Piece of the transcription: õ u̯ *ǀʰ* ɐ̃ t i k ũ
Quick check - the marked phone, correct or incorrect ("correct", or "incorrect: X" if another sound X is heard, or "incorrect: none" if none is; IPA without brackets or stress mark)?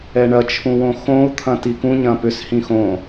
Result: incorrect: t̪ʰ